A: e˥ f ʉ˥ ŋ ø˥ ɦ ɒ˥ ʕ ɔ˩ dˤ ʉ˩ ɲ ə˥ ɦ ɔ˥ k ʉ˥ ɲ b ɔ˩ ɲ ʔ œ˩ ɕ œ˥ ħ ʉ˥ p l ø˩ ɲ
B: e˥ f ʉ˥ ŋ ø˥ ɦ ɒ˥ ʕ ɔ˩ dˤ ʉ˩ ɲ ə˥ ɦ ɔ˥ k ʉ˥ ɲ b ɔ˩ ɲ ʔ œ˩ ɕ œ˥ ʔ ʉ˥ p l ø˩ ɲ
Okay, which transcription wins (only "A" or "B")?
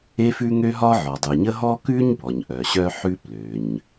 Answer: A